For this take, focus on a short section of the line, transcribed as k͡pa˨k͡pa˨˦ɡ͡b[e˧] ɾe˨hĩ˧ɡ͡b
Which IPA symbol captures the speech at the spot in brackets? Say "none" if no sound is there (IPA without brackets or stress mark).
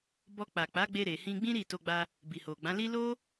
e˧